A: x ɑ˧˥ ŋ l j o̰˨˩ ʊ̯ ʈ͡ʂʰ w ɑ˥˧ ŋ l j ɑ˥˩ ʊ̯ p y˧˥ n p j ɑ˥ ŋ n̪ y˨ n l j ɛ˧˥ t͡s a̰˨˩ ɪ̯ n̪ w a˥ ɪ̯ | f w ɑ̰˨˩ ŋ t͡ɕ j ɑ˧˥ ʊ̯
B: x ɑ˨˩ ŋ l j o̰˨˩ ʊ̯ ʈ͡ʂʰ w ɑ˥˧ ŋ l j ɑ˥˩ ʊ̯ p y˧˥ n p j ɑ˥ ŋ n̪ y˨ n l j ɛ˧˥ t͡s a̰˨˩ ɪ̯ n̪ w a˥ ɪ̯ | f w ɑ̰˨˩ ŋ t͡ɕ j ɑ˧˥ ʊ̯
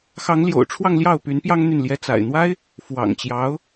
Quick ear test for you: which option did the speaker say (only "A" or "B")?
A